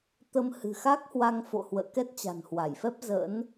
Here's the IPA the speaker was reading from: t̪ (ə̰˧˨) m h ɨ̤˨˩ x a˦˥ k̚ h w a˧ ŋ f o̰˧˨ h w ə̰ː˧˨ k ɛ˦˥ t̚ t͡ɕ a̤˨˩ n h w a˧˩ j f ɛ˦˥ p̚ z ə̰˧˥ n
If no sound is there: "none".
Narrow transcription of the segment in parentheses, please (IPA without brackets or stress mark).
ə˧